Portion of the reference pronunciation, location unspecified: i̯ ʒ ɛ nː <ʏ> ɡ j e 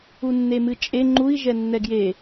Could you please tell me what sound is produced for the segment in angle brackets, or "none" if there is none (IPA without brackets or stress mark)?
ɛ